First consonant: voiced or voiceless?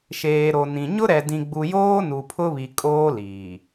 voiceless